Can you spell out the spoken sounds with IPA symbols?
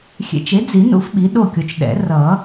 xʲ ḛ˨˩˦ t͡ʃ e˩˥ d͡z i˨˩˦ n ṵ˦˥ f ɓ i˩˥ ɗ o˥˨ kʲ o˨ t͡ʃ ɗ ɛ̰˨˩˦ r ʌ˨˩˦

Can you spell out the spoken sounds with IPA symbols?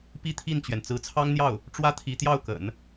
p i˥ t̪ʰ i˥˩ n t͡ɕ ɥ ɛ˩ n t͡s ɹ̩˧˥ t͡sʰ ɑ˥ ŋ n̪ j ɑ˥˩ ʊ̯ | ʈ͡ʂ w ä˥ t̪ʰ i˧˥ t̪ j ɑ˥˩ ʊ̯ k ə̰˨˩˦ n

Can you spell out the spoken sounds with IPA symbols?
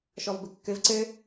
ʃ ɔ v b ɘ kː ɘ v ǀ ɘ

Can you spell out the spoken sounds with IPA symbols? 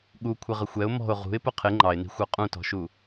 ɠ u kʷʰ ɪ ʁ ə xʷ ɛ ʊ̯ m ɔ̤ ʊ̯ ʁ ṳ ɪ̯ p ʊ qʰ ɪ ŋ͡ǃ ɑ ɪ̯ n i̤ xʷ ə˞ qʼ ũ t ɔ̤ ʃ u

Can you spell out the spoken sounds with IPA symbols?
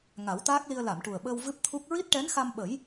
ŋ a˨˩˦ w t̪ aː˦˥ k̚ l i˧ ə̯ l a˨˩˨ m ʈ u˨˩ ə̯ ɓ əː˧ w v ɨ˦˥ p̚ t̪ʰ u˦˥ k̚ ɹ i˦˥ t̚ ʈ ɛ˧˥ n x a˧ m ɓ ə˨˩˦ j

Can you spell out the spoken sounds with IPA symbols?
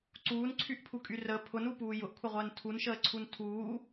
ǀ uː n ǀʰ y ʔ pʰ u kʼ y r ə pʰ ʊ n u p uː j ʊ ʔ kʷʰ ə ʁʷ əː n tʰ u n ʃ əː ǀʰ u n tʰ uː

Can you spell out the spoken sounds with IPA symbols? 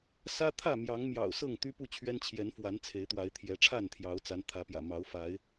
s ä˦ t̪ʰ ä˥˨ m j ɑ˨˦ ŋ m j ɑ̰˨˩ ʊ̯ s ɤ˥˨ ŋ t̪ y˦ p u˥˨ t͡ɕʰ ɥ ɛ˦ n t͡ɕʰ j ɛ˨˦ n f w a˨˦ n t͡sʰ e˨˦ ɪ̯ t̪ w a˨˦ ɪ̯ t̪ʰ j ɛ˨˦ ʈ͡ʂʰ a˥˨ n t̪ʰ j ɑ˨˦ ʊ̯ t͡s a˨˦ n t̪ʰ ä˨˦ p j ä̰˨˩ m ɑ˨˦ ʊ̯ f a˨˦ ɪ̯

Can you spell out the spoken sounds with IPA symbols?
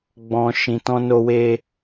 ɡ͡b ɔ̃˨ ʃ ĩ˨ t ɔ̃˧ n o˧ w e˧

